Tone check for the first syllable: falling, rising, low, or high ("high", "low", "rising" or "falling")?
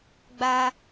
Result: high